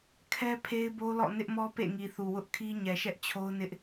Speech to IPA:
kʰ ɛ˦ pʰ e˦ ɪ̯ b o˦ l ɔ̰˦˨ n ɪ˦ ʔ m ɔ˦ p ḛ˦˨ ŋ i˨ θ u˨ w ʊ˦ ʔ kʰ i˦ ɲ ɛ˨ ʃ ɛ˦ ʔ t͡ɕʰ o˦ ʊ̯ n ɪ˦ ʔ

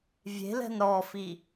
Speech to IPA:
vʲ e̤ l ɛ̤ n ɾ ɔ f i

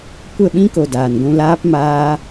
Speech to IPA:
kʷ ə˦˨ ɓ ĩ˦ k o˨ d aː˨ n ɡʷ ũ˧ l aː˦ p m aː˦

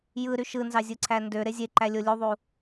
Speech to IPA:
j ɯ ɾ y ʃ ɯ n z ɑ zʲ ɯ ǀʰ æ n d ø ɾ e zʲ e ǃ æ lʲ o lʲ u ðˤ u

